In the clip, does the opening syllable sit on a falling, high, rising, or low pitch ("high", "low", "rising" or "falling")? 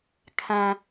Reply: high